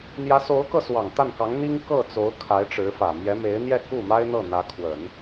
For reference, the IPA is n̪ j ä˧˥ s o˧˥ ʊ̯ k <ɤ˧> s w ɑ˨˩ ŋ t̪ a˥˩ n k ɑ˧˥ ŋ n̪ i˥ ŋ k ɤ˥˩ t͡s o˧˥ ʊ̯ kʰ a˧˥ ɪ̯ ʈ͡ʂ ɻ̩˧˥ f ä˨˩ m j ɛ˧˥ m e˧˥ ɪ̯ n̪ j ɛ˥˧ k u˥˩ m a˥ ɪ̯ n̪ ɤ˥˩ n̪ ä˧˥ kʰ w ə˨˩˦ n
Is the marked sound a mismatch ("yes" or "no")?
no